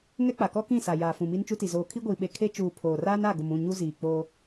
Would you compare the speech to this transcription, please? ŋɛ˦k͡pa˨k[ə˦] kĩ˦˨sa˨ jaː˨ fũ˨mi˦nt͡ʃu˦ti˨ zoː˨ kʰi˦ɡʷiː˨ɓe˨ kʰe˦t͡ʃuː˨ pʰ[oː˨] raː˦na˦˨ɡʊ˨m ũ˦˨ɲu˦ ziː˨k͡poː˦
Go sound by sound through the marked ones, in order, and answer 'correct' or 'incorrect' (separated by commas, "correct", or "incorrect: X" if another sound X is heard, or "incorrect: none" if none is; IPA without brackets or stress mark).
incorrect: ɔ˦, correct